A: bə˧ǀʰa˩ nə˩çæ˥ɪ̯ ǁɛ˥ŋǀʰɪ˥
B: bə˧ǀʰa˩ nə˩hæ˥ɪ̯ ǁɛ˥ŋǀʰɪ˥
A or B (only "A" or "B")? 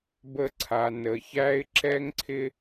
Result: A